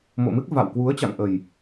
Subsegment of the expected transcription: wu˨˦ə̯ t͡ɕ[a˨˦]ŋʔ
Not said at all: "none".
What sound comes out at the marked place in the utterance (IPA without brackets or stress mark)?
a̰˧˨